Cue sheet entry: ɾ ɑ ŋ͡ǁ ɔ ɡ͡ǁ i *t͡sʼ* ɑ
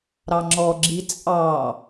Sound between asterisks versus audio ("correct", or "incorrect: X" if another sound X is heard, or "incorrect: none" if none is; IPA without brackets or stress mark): correct